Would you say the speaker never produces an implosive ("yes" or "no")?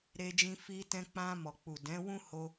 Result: yes